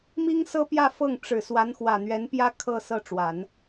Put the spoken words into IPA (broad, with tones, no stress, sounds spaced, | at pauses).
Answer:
m i˥ ŋ s ɤ˥ p j ä˥˧ f ɤ˥˩ ŋ ʈ͡ʂ ɻ̩˨˩ s w a˧˥ n x w ä˨˩ n̪ ɥ ɛ˧˥ n p j ä˥ kʰ ɤ˥˧ s ɤ˥˩ ʈ͡ʂ w a˨˩˦ n